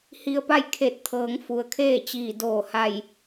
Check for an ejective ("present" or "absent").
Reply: absent